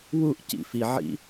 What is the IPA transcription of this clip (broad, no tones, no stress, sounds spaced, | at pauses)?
w u ʔ c ḭ f i ʕ ḭ